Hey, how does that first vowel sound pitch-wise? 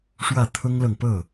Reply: falling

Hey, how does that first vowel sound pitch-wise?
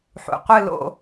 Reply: low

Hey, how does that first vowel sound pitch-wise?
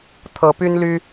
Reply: rising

